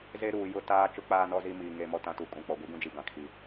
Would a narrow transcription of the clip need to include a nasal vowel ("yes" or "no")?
yes